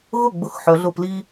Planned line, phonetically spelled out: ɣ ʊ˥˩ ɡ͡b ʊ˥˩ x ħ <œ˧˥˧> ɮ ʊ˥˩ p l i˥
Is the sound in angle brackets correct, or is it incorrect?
incorrect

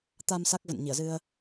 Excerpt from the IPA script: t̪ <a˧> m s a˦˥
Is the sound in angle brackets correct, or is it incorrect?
correct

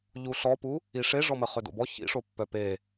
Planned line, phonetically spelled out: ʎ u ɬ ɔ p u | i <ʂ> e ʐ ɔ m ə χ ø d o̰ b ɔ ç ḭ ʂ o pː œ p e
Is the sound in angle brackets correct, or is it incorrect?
correct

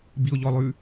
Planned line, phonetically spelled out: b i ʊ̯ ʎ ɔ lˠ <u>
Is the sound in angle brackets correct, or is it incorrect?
incorrect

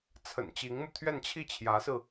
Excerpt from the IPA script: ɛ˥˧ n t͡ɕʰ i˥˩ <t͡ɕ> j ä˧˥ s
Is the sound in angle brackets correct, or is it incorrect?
incorrect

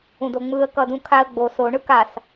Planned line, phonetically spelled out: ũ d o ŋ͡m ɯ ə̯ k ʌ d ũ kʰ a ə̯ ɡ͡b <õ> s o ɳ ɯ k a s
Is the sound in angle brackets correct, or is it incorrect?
incorrect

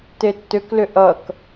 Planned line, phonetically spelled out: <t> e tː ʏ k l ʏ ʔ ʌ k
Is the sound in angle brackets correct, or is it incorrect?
correct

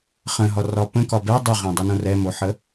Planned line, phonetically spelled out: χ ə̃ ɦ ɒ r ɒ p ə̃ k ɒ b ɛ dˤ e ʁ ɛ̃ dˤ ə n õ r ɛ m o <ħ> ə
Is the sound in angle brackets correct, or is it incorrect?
correct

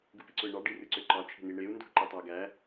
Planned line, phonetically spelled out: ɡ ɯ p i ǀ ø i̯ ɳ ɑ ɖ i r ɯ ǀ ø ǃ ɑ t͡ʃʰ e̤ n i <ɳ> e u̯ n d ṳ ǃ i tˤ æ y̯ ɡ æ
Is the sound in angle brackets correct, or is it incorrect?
correct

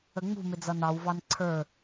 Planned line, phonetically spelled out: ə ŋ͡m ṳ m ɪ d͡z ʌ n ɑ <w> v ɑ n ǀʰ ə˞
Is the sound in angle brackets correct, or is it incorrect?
correct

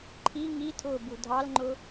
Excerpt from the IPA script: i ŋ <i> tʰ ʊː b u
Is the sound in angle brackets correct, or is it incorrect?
correct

